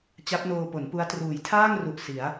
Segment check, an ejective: absent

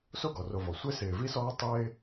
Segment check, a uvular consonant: absent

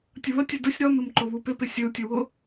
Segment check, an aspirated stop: absent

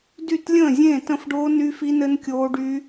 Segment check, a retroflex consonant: present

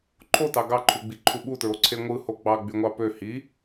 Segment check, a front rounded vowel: present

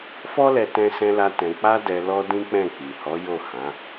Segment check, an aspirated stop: absent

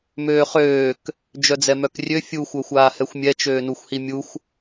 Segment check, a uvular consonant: present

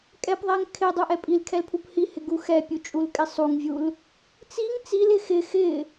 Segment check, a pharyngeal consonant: absent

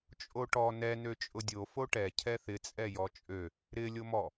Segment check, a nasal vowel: absent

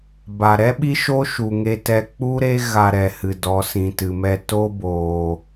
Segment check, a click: absent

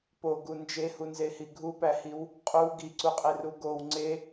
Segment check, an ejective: present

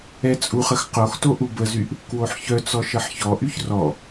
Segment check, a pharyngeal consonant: present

